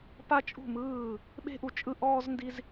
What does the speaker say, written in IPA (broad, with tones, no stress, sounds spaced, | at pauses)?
p a˦ t͡ʃʼ ṳ˦˨ m ɯː˦˨ | ɓ e̤˦ ʔ u˨ t͡ʃʼ ɯ˦ ʔ ɔː˦ z n d i˦ z